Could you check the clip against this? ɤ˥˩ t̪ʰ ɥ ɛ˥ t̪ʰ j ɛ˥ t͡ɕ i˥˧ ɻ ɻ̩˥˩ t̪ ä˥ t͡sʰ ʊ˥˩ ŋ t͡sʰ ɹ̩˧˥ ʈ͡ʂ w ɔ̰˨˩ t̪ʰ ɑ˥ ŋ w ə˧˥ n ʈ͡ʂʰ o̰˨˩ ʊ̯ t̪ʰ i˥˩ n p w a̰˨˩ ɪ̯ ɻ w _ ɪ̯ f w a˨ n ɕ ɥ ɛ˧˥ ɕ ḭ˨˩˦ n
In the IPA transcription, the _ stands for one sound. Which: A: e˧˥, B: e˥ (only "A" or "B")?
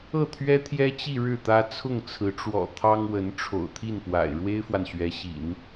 B